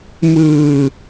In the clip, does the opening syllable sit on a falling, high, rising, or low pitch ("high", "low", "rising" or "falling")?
low